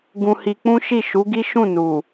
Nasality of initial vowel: nasal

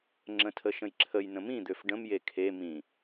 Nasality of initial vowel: nasal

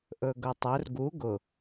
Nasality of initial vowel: oral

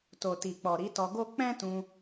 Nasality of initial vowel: oral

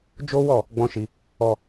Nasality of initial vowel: oral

